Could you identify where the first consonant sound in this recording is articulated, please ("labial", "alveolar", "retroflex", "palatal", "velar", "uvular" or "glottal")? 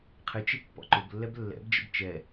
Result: uvular